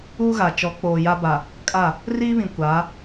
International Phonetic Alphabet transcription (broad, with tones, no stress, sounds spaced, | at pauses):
uː˦ ɣ a˨ t͡ʃ ɔ˨˦ k͡p oː˨ j a˦ b a˨ | kʼ a˦˨ | r iː˦ β ĩ˨ kʷ aː˨˦